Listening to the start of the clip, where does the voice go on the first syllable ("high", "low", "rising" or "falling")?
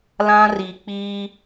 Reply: high